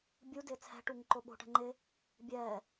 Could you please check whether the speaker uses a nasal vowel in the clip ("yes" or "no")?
no